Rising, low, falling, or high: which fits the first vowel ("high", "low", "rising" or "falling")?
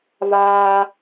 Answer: high